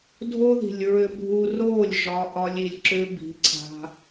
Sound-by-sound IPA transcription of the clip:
dʱo˦ði̤˨lʲɹʏ˧bʱu˧ roː˦˨lʲ ʒɒ˧ ʔɒ˧lʲi˨lʲǁʏː˧ bi̤˨˦ǀʰa̤˧

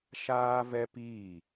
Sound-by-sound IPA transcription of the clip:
ʃaː˦ vɛ˦piː˦˨

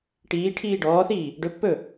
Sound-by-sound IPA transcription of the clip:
ʈiː ʈʰiːɖɔːθiː | ɖɵpːɵ

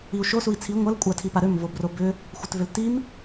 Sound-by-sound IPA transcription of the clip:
iu̯ʃo sui̯t͡sʰi ŋʷɐl kʷʼatʰipaɾøm vobrobʏ | xʷɐtvʏltim

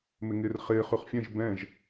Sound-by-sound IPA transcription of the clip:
mɪŋɪːrχɪː χʉχfʲɛ̃ʒ bɛ̃ʒ

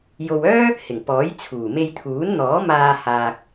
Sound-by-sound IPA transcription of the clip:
jo˨wœː˥ | hɪ˨˩ŋpɔː˨˥jt͡sʰuː˨˩ me˧jt̪ʰuː˨˥nn̪ɔː˨˥ maː˧ haː˨k̚

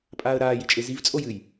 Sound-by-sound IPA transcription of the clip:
pʼaːə̯ɾaːjit͡ʃʼe ziv t͡sʼojɨj

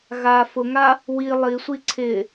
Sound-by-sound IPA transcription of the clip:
ɣa fʊŋa | wi lˠisʷi ǀʰɪ

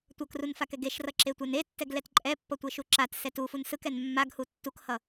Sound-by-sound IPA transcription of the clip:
tʷʌkrunfakɛɡ eʃrʌǁetʷɛn etːɛɡlɛt ǃʼɛpːʌtʷeʃu ǁatsɛt ufun sɯkɛn mːaɡhu tːukhʌ

